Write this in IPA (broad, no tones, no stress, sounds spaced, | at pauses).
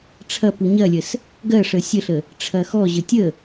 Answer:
ʈ͡ʂʰ ɐ p u ɲ ɐ lʲ ə s | ɡ ɜ ʂ ə sʲ ə ɬ ə | ʈ͡ʂʰ ɐ x ɔ ʑ ə tʲ ə